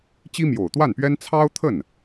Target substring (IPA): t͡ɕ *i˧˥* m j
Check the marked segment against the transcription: incorrect: i˥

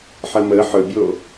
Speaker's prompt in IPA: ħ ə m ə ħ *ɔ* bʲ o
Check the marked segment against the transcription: incorrect: ɵ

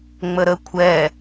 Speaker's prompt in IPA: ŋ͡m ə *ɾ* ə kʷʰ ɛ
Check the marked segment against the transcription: correct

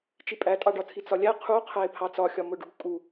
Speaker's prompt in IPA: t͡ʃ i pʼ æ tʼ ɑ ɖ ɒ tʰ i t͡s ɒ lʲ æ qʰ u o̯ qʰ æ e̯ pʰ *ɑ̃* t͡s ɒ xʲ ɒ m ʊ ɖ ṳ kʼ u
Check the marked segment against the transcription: incorrect: ɑ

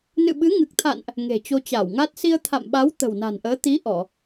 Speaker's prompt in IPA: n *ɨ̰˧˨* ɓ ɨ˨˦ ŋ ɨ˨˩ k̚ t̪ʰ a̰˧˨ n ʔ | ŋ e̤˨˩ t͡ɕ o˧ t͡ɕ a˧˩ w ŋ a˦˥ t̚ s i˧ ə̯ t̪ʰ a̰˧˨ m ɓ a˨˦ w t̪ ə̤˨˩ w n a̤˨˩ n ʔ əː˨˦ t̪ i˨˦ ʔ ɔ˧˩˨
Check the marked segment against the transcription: correct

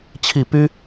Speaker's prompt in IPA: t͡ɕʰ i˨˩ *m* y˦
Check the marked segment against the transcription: incorrect: p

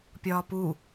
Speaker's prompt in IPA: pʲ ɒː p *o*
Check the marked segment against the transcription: incorrect: u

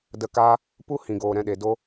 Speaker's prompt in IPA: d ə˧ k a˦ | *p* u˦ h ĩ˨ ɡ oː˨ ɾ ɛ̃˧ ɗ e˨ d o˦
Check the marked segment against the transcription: correct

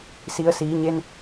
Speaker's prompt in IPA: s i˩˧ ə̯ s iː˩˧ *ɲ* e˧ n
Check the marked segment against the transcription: correct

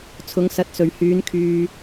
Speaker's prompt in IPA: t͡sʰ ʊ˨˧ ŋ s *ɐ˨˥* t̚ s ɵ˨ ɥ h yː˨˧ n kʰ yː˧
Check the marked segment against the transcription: correct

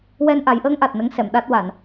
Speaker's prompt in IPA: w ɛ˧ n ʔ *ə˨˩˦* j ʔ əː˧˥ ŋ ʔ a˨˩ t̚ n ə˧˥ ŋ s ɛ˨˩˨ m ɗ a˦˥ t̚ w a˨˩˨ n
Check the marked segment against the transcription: incorrect: a˨˩˦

